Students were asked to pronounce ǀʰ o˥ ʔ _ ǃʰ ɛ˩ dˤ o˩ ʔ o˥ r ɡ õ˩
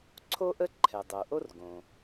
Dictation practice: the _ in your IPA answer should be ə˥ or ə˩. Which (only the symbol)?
ə˥